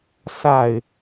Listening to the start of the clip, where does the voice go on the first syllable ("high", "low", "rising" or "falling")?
falling